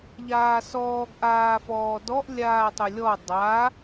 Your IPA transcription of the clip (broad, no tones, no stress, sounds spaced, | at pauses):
ʎ aː s ɔː ɡ ʔ aː f ɔː d ɔ ʔ lʲ aː tˤ ʊ lʲ ɔ dˤ a